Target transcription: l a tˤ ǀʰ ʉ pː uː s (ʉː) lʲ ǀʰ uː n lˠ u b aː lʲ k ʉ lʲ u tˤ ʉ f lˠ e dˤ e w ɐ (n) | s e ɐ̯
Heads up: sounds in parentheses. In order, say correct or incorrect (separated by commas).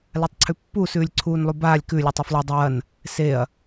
correct, correct